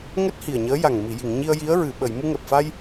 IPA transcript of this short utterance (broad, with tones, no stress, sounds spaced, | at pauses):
ŋ ɛ˦˥ t̚ h i˨˩ ə̯ ɲ əː˧˥ j a˨˩ ŋ m i˨˩˨ j i˨˩˨ ŋ ɲ i˧ ə̯ j i˧˥ ə̯ ɹ ɨ˨˩˨ ɓ ə˨˩˨ j m u˧ ŋ ɛ˨˩ p̚ f a˧ j